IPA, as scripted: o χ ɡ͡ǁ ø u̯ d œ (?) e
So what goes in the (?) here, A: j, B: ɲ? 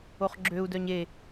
B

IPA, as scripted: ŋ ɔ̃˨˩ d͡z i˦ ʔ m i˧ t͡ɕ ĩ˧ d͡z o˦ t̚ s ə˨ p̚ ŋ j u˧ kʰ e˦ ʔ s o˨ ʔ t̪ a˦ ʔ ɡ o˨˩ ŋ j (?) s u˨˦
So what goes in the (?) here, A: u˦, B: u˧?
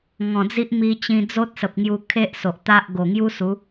A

